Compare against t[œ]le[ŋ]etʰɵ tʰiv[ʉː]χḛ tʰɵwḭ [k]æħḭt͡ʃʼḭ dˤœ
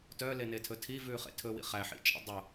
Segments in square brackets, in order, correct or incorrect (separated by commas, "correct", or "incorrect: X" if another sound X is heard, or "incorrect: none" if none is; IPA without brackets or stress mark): correct, incorrect: n, correct, incorrect: χ